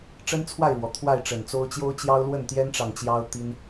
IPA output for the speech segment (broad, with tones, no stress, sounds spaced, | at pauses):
ʈ͡ʂ ə˦ n t͡sʰ w a˥˨ ɪ̯ ɻ w ɔ˩ t̪ʰ w a˥˨ ɪ̯ ʈ͡ʂ ə˨˩ n t͡s o˦ ʊ̯ t͡ɕ j o˦ ʊ̯ t͡ɕ j ɑ˦ ʊ̯ l w ə˥˨ n t̪ j ɛ˦ n ʈ͡ʂ ɑ˨ ŋ t͡ɕ j ɑ˦ ʊ̯ t̪ i˦ n